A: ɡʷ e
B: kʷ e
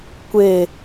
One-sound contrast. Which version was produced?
B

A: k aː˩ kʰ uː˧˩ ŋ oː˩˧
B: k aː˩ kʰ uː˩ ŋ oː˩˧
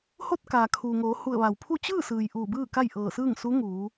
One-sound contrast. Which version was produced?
B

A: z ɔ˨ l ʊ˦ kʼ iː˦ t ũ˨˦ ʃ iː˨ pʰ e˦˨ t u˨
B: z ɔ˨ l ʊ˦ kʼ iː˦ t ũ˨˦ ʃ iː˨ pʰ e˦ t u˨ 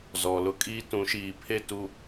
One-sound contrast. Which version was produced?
A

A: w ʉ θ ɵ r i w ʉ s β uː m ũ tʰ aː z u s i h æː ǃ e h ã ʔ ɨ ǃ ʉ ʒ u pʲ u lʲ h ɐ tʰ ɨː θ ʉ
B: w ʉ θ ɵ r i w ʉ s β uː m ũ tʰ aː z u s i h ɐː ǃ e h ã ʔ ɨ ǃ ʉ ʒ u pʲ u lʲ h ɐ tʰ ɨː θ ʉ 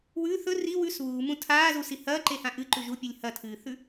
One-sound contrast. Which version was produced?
B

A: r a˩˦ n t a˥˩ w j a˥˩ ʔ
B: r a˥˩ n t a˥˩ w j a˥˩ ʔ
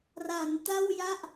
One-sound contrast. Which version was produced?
A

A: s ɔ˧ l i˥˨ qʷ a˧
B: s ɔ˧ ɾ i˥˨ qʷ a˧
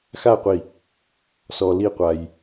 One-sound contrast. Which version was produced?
A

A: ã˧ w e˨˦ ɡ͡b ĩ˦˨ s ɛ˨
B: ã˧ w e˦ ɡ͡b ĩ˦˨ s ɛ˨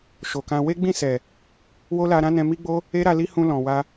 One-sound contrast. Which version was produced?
B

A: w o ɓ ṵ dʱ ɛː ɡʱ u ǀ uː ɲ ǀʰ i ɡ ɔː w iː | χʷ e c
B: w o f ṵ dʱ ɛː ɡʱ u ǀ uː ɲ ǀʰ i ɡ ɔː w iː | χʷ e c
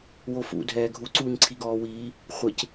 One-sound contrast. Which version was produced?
B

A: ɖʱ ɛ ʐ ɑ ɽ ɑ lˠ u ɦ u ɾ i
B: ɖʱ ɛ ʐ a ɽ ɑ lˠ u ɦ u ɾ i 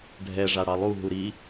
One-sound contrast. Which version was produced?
B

